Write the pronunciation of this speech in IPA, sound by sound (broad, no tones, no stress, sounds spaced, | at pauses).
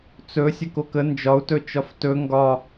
t͡s ɵ sʲ ə k o k ə n d͡ʒ ɒ u̯ t ɵ t͡ʃ ɒ f t ɵ ŋ ɡ ɒ